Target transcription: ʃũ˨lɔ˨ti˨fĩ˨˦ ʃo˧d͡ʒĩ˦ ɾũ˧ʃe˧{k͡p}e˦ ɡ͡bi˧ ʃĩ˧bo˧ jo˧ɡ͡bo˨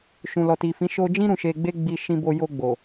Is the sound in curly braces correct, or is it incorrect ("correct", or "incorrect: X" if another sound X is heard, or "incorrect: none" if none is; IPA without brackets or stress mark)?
incorrect: ɡ͡b